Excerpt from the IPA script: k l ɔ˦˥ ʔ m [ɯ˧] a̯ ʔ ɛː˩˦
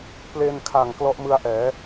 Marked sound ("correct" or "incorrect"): correct